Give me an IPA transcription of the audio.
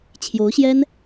t͡ɕʰ j o˧˥ ʊ̯ ɕ j ɛ˥ n

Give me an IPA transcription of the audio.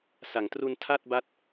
s a˩˦ ŋ t r u˧ n tʰ a˥˩ t̚ b a˦˥ t̚

